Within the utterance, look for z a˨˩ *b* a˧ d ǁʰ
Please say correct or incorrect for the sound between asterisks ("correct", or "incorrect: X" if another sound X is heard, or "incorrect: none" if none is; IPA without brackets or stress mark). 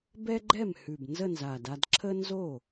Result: incorrect: d